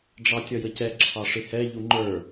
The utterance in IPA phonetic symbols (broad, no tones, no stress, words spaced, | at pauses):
ɖ͡ʐɑtʲʌjəcɛ ǁʰɑʂɪhɛ ʎuŋ͡ǃə˞